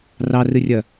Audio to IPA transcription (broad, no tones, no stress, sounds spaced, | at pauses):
r ɑ r ɨ rʲ ɐ